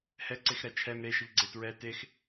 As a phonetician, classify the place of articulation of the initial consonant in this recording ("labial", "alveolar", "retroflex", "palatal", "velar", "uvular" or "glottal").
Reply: glottal